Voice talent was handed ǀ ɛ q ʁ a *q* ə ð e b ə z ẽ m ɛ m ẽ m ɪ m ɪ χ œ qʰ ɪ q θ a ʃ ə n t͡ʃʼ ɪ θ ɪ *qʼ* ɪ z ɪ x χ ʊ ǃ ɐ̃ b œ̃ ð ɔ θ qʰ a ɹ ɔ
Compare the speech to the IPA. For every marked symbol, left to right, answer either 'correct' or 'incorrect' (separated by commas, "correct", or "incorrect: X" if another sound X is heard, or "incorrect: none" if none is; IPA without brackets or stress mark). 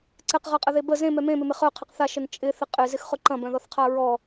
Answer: incorrect: qʼ, correct